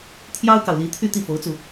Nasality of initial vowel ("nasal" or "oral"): oral